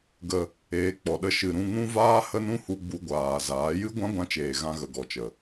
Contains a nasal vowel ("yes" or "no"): yes